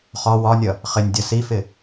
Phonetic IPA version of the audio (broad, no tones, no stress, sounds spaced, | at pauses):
χ ɒ w ɒ nʲ ʌ | χ ɪ nʲ dʲ ʌ s i f ɪ